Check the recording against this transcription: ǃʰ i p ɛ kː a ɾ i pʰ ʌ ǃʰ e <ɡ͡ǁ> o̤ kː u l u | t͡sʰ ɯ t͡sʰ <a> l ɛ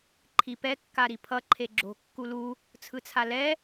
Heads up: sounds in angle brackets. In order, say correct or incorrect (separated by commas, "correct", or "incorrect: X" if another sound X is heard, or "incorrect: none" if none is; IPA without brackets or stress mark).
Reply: correct, correct